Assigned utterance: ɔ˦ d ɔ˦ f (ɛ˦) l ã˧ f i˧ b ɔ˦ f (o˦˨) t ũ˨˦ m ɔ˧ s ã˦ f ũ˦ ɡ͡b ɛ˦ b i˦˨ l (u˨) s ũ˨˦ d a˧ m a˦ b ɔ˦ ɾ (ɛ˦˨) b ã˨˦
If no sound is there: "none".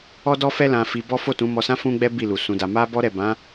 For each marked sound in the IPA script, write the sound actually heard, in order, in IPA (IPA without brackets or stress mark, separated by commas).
ɛ˦, o˦˨, u˨, ɛ˦˨